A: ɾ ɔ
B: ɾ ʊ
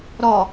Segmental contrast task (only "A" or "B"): A